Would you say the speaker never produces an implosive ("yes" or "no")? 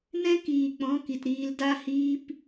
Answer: yes